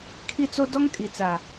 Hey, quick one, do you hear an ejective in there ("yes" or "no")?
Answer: yes